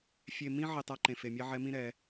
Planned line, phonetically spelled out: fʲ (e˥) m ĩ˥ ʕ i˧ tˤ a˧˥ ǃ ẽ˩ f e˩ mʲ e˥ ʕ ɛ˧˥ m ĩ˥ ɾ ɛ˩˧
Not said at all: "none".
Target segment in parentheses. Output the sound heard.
e˧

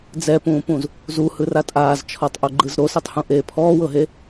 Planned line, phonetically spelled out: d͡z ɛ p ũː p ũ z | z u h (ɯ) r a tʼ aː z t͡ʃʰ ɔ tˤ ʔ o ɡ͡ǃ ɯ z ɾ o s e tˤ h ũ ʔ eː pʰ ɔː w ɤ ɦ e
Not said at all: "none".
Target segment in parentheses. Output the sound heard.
ɯ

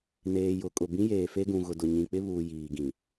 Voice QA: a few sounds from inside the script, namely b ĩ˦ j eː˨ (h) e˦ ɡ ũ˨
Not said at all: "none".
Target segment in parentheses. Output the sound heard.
f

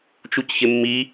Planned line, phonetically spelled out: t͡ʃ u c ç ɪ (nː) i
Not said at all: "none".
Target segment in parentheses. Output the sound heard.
mː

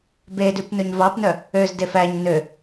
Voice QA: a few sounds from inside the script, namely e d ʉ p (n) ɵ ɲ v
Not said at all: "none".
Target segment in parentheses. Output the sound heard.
n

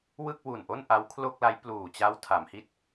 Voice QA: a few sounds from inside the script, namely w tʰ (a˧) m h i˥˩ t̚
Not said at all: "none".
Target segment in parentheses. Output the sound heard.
a˩˦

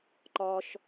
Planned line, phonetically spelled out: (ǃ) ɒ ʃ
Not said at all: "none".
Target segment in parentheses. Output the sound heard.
ǃ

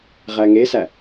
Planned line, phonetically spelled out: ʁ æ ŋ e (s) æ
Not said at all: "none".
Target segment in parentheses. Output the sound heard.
s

